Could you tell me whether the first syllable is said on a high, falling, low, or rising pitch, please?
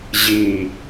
low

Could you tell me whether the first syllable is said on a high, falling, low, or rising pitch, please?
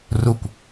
falling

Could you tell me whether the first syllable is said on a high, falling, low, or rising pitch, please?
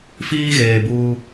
high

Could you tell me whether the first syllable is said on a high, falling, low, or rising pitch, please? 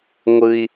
high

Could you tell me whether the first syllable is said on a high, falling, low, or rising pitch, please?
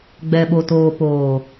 low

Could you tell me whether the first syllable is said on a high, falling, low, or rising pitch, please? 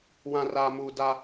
low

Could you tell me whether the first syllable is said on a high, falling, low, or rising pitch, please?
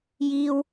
high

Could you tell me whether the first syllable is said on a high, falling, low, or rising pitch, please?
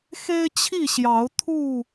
high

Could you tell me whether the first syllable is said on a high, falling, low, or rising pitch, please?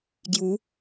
rising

